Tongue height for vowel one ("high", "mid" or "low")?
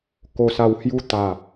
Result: mid